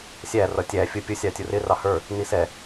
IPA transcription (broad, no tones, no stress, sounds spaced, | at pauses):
sʲ æ r ʌ tʲ æ fʲ ʊ pʲ ʊ sʲ ɑ tʲ ʊ r ɪ r ɑ h ə˞ | n i s ɛ